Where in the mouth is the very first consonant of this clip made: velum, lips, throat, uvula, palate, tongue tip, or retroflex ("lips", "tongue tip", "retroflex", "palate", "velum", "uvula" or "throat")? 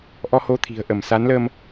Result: throat